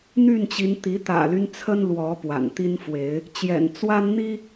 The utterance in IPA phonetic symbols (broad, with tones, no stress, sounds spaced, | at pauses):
n̪ y˥˨ n t͡ɕ i˨˦ n t̪ i˨˦ t̪ ä̰˨˩ l y˦ n t͡sʰ ə˦ n l w ɔ˨˦ p w a̰˨˩ n t̪ i˦ n f w e˨˦ ɪ̯ | t͡ɕ j ɛ̰˨˩ n t͡s w a˦ n n̪ i˦